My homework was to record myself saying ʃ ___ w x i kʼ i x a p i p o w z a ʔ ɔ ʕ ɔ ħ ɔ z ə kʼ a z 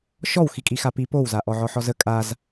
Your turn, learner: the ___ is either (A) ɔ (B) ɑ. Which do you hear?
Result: A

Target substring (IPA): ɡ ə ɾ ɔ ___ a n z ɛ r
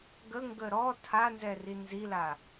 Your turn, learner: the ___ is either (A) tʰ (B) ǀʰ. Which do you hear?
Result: A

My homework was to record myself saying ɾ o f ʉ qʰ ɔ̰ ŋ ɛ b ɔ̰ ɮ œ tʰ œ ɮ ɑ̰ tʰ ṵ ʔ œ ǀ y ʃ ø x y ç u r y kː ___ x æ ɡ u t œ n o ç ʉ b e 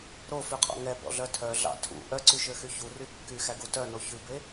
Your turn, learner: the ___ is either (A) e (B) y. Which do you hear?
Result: B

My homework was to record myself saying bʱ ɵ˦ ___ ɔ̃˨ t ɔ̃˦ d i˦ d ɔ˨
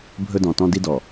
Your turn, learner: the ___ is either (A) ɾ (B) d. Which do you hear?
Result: B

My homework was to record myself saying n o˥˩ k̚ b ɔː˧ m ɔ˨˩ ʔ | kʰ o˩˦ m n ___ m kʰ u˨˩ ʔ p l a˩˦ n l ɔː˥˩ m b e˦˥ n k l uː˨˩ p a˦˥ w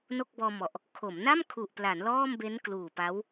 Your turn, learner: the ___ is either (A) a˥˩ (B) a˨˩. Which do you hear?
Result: A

